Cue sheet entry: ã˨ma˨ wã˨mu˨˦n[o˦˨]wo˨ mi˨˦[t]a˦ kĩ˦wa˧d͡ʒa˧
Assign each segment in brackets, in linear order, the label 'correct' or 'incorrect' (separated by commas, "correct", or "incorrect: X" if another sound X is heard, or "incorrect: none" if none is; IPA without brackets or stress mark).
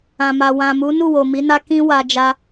incorrect: u˦˨, incorrect: n